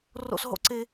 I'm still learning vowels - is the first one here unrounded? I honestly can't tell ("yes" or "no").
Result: no